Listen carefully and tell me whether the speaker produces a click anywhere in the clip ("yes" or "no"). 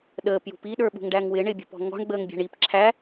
yes